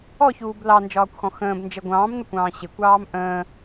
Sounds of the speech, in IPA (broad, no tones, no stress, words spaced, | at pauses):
ɔçuːb lɑnd͡ʒɒːkʷxɔ̃ xə̃ːb nd͡ʒə ɡʷɑ̃ːmnəkʷɑ̃ː ɕɪkʷɑːm ʔə̃ː